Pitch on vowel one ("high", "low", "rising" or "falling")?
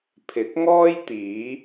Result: rising